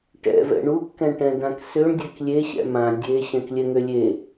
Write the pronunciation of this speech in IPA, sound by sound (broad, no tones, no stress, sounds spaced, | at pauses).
ʈ ɛ̰ v ɛ̰ ɳ u kː ɛ̃ ɳ ʈ ɛ̃ d ã k s ø ɳ dʲ ɛ k lʲ e ɕ ɛ̰ m ã dʲ e ɕ ɛ̃ k lʲ ɛ ŋ ø lʲ e